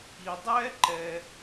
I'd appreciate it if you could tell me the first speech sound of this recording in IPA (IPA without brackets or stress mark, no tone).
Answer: i